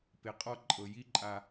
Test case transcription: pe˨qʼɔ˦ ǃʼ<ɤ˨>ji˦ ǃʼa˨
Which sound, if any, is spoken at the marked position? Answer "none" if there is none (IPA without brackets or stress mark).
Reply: ɤ˨